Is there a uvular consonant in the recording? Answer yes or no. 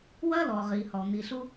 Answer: yes